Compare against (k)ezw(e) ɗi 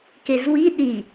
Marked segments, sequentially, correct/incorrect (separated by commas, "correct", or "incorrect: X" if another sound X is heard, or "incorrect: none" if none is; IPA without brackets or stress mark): correct, incorrect: i